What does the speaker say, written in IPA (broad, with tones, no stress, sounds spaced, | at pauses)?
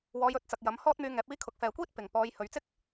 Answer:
w ɔː˧ j ɵ˧ t̚ t͡s ɐ˨ k̚ j ɐ˨˥ m h ɔː˥ t̚ m yː˧ ŋ ɛː˨˥ p̚ iː˧ kʰ ʊ˨˥ k̚ f ɛː˨˧ kʷ iː˥ t̚ p ɪ˨ ŋ p ɔː˧ j h ɵ˨˧ ɥ t͡s ɪ˥ k̚